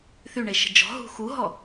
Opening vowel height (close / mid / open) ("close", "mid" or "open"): close